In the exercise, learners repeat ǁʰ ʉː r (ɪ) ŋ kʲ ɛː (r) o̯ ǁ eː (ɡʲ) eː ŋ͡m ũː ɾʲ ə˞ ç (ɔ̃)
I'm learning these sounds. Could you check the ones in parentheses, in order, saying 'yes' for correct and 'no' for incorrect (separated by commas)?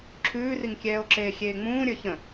no, no, no, no